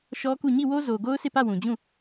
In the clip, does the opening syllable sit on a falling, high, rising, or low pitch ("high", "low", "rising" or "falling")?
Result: high